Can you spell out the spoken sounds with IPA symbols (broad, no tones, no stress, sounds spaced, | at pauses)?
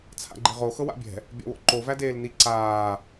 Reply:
t͡sʰ a̰ ɡ͡ǃ i ʁ o x ɤ w a̰ bʲ ɛ̤ | bʲ a̰ w o̰ ǃ o v æ d eː l n i ǀ aː